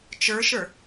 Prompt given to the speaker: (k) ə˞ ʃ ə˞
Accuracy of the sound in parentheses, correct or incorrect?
incorrect